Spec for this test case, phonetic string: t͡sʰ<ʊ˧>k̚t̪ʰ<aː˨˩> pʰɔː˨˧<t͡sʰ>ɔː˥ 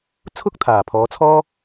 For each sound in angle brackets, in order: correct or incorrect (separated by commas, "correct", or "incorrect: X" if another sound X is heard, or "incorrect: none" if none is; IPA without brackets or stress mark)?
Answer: incorrect: ʊ˥, correct, correct